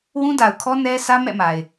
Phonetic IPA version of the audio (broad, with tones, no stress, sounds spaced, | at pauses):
w ũ˦ d a˨ ʊ̯ kʰ ɔ˦ n ɛ˦ sʰ ä˦ m ɛ̰˦˨ m a˨ ɪ̯